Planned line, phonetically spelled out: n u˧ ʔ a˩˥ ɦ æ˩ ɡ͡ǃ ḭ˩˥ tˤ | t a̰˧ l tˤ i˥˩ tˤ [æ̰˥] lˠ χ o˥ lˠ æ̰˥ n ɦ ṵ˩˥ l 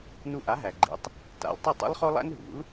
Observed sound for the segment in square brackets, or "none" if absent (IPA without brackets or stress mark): a̰˥